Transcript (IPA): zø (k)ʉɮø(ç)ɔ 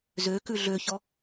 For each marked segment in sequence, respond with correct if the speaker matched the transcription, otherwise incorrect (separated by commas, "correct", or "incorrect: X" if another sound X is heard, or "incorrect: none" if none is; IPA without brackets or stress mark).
correct, correct